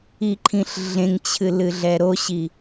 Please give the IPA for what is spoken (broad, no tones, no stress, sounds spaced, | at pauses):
i ǃʰ ĩ ɬ ɮ ẽ ŋ t͡ɕʰ ɨ l ɨ ɮ ɛ ɾ o ɕ i